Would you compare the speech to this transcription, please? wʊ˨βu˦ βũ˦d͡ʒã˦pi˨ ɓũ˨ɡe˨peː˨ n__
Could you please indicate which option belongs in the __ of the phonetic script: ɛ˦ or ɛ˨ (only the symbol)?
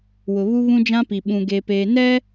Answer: ɛ˦